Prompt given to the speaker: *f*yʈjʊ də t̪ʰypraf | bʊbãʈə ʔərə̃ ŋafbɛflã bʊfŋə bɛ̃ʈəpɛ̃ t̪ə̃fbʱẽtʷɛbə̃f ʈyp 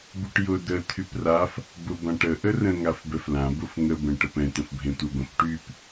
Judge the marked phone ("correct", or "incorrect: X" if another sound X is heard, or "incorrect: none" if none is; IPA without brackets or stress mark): incorrect: b